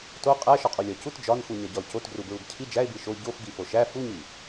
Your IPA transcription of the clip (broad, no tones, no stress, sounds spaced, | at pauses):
t o qʼ æ ʃ ɒ qʼ u lʲ ɒ c u t d͡ʒ ɒ n x u ɲ ɒ ɟ ɒ ʊ̯ c o t ɡ r u b ɹ u ɡ cʰ i d͡ʒ æ ɪ̯ b i ʃ o ɟ o f ɡ i f o ʃ æ f u ɲ i